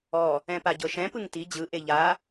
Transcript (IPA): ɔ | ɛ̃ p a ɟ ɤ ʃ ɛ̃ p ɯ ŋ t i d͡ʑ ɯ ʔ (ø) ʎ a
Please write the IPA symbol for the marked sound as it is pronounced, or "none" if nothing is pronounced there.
e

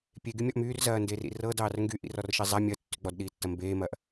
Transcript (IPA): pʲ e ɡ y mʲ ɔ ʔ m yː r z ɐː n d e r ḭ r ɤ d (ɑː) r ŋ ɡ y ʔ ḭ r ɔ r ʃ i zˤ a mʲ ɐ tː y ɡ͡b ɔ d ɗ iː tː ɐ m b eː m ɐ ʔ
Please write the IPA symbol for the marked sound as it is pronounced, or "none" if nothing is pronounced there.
ɑː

